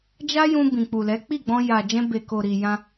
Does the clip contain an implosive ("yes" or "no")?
no